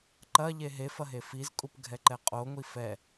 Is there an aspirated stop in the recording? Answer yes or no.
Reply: no